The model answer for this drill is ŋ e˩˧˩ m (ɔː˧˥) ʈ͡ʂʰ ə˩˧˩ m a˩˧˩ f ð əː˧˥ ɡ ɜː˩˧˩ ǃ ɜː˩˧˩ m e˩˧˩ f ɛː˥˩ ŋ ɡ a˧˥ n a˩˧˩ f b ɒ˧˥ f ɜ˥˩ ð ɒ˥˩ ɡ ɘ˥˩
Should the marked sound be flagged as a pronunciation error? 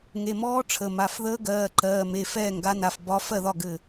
no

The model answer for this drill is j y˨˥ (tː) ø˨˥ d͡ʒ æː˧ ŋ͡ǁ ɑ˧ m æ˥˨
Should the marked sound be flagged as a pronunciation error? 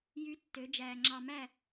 no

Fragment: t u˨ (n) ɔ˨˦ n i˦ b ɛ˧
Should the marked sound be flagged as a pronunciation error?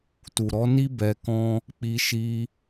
yes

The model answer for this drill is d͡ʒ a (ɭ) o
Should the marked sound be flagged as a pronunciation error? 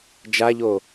yes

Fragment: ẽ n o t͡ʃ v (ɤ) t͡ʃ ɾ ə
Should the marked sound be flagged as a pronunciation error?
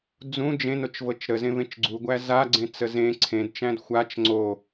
no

